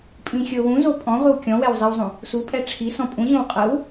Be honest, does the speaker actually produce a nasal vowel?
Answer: yes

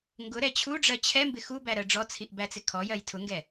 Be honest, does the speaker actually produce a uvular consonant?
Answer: no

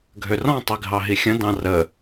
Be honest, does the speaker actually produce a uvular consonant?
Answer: no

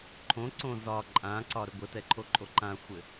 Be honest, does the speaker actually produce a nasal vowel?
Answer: yes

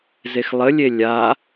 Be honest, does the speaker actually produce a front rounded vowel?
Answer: no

